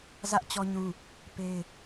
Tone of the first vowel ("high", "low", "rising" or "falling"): high